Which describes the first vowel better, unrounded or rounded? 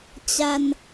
unrounded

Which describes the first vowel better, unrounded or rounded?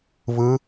unrounded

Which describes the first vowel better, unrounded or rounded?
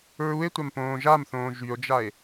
rounded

